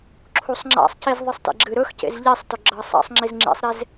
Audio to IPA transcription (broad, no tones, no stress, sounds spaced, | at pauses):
ǁʰ u sˤ ŋ͡ǁ a̰ sˤ c i z ðˤ ɨ sˤ t ḛ ɡ͡ǁ ɨ ɾ ɵ x c ḛ z ʎ e sˤ t ɵ ɡ͡ǁ ɐ sˤ a̰ sˤ ŋ͡ǁ i z ŋ͡ǁ ḛ sˤ ɾ e z